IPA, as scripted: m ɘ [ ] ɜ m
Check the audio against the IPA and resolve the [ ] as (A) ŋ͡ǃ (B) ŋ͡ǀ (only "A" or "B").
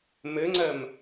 B